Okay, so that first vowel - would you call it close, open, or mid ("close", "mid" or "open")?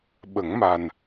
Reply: mid